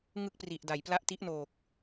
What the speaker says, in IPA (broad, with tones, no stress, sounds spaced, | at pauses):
ŋ ɯ˥˩ k̚ p r i˨˩ ʔ d a˩˦ j p l a˦˥ ʔ t i˦˥ ʔ n oː˨˩ k̚